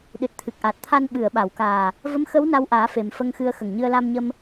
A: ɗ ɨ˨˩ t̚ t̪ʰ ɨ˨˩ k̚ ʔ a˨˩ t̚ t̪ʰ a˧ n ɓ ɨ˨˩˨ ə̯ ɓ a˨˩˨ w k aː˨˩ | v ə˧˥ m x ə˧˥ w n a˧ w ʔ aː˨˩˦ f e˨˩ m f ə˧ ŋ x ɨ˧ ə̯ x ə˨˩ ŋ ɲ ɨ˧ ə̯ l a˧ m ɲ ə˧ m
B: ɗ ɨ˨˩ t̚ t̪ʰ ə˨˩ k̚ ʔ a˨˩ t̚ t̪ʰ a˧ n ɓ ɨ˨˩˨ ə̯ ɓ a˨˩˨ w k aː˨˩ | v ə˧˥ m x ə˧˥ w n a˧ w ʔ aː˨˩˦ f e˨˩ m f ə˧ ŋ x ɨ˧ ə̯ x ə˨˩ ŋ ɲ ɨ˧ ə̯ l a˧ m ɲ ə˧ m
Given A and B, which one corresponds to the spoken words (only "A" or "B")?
A